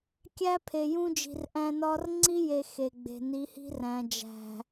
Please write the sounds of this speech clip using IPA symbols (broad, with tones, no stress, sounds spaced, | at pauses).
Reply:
kʲ æ˦ pʰ e˨ j ũ˦ d͡ʒ i̤˨ r ʔ æ̃˦ n ɒ˦ r ŋ͡ǀ i˦ j e˨ x e˨ ɡ͡b e̤˨ n i˨˦ h i̤˦ r æ̃˨ d͡ʒ æ̤˨